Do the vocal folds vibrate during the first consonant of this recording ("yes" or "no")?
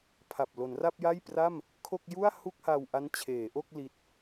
no